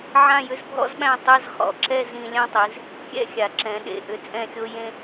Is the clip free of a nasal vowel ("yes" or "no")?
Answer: no